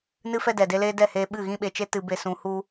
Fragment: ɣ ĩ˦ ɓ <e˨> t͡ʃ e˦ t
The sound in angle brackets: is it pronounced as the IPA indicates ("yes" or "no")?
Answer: yes